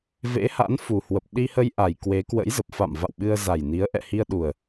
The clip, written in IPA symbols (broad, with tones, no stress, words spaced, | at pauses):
vḛ˧˥ha̰˧˥nfu˨˩hwə˨˩p̚ ɗi˧hə˧jʔa˨˩j kwe˨˦kwə̰˧˥jzə˨˩p̚ fa̰˧˨m va̰˧˨wɓɨ˧ə̯za˨˩jni˨˦ə̯ ʔɛ̰˧˨hi˧ə̯ɗu˨˩ə̯